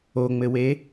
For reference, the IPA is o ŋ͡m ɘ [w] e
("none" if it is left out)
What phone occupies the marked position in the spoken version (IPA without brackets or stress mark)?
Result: w